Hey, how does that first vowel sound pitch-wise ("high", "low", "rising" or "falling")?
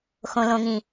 low